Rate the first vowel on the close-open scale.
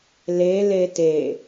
mid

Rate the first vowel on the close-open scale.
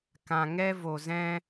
open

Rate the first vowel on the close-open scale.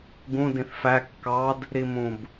close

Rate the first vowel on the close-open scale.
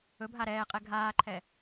mid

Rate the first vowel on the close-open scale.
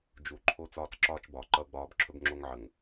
close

